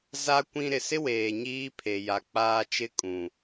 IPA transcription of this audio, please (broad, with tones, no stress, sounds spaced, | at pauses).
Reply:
z a˦ kʷ ĩ˦ ɾ ɪ˨ s ɪ˦ w eː˨ ɲ iː˦ pʰ e˨ j a˨ k͡p aː˦ t͡ʃ ɪ˦ kʼ ũ˨